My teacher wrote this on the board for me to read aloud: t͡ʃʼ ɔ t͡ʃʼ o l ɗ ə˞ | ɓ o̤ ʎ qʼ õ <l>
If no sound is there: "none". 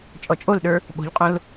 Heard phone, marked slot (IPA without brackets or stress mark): l